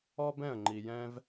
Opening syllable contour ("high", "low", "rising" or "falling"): high